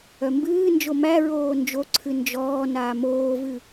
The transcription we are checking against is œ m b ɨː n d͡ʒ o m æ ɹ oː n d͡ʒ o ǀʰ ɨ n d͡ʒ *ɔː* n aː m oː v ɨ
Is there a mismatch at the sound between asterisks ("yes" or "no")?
no